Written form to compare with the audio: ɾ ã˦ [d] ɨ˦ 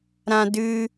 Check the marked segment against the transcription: correct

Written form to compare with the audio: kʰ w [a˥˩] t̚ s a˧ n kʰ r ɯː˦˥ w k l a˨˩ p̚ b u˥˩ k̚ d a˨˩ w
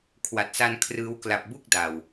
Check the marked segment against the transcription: incorrect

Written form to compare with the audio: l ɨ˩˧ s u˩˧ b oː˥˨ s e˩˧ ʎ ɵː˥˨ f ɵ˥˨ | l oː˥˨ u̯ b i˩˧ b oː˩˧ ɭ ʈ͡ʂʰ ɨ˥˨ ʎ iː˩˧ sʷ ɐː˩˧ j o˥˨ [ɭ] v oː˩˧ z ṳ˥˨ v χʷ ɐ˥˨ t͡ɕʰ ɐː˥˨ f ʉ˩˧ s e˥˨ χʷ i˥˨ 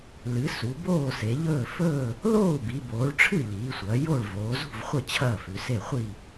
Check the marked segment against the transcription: correct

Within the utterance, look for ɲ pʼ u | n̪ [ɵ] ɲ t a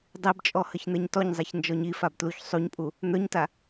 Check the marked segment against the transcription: incorrect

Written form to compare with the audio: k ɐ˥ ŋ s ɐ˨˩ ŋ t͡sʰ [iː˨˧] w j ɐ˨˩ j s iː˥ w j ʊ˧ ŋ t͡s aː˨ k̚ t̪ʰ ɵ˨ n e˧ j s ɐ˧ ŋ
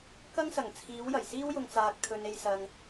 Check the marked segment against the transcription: correct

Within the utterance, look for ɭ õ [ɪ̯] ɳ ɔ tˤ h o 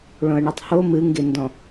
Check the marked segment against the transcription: incorrect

